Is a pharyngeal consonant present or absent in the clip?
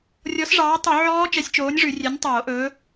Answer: present